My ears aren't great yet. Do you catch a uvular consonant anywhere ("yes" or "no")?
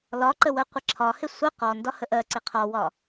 yes